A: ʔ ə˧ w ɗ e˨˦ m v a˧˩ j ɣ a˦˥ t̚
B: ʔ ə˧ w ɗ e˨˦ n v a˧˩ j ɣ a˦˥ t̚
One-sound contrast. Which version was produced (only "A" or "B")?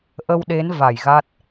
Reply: B